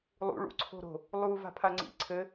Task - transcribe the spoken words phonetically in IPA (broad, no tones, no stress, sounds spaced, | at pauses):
lˠ ṵ ɭ ṵ ǀʰ o̤ ɾ o̤ | lˠ u v a̤ pʰ a ŋ͡ǀ ḭ ǀʰ ɘ